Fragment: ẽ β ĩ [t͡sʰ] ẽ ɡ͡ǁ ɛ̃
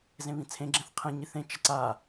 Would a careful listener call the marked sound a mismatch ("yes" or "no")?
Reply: no